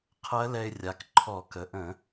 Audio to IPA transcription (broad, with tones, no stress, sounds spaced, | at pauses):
qʰ ɜ˧˥ l ɛ˧ ɪ̯ rʲ a˩˧ k ǃʰ ɔ˧˩˧ k ə˩˧ ʔ ə̃˧˩˧